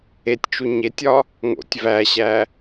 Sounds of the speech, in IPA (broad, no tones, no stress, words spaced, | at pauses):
etʲt͡ʃu ɲetʲɒ | ŋo̰tʲ væɕæ